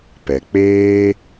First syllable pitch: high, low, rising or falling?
low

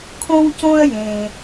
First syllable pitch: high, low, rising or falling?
high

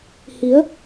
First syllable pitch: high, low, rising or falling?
rising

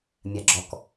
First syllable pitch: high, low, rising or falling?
low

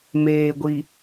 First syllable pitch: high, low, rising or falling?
low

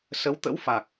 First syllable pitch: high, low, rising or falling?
rising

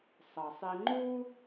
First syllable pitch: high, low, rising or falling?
low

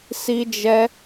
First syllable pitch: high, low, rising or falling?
high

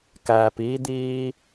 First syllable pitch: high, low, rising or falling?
low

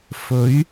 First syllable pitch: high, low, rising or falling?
rising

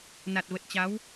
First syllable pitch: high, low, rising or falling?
low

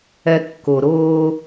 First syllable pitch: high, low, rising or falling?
low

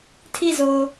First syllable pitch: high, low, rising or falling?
falling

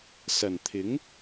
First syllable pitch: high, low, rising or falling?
low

